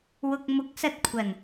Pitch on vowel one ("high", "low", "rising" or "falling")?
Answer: low